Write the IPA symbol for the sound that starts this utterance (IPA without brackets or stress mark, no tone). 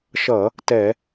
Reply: ʃ